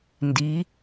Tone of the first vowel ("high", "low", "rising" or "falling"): rising